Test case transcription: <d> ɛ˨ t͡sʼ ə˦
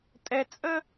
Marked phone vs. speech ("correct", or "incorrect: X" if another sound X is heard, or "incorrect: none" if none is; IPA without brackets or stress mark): incorrect: tʼ